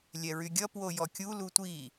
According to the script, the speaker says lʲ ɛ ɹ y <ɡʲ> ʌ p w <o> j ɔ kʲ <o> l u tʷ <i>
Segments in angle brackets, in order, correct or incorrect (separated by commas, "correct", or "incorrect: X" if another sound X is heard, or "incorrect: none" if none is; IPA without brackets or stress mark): correct, correct, incorrect: u, correct